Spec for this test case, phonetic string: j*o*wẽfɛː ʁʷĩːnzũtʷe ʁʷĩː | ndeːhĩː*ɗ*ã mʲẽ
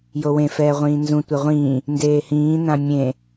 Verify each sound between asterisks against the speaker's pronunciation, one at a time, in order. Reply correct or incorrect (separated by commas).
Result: correct, incorrect